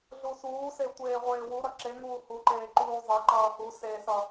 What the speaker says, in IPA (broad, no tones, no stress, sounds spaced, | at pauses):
ɮ u s uː s e tʷ eː ʁʷ eː w u ɾ ʌ ǁ e ŋ uː h u ǃ eː ǃ uː zˤ e ǃ ʌː h u s e s ʌ